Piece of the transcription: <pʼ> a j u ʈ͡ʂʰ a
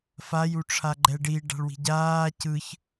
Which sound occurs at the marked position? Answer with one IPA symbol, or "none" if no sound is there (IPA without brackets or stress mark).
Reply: f